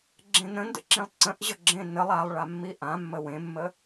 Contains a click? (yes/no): yes